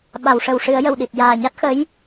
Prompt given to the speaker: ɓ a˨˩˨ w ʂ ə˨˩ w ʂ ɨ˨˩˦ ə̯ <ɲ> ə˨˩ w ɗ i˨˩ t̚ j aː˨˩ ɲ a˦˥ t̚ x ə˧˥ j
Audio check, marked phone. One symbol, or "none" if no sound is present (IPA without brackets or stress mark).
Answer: j